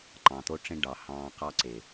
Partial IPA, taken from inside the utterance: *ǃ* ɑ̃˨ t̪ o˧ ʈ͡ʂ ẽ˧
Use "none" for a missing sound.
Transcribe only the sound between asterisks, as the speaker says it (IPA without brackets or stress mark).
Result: ǃ